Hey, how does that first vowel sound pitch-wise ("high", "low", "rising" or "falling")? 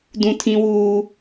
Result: high